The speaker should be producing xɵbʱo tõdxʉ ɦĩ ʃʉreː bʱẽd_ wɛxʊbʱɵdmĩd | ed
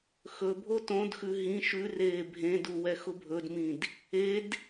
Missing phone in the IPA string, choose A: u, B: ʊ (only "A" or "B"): A